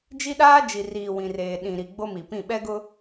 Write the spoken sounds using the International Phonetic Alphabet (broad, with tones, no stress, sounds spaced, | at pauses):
d͡ʒ i˦ ɗ aː˦ d͡ʒ i˨ r iː˨ w ĩ˨ r eː˨ ɗ ĩ˨ ɾ i˨ ɡ͡b o˦ m i˨ p ĩ˦˨ ɓ ɛ˦ ɡ ʊ˦